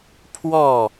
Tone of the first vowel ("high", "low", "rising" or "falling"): falling